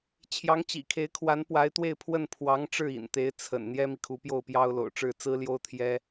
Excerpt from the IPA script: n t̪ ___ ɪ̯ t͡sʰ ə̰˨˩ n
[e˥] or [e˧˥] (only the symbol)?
e˧˥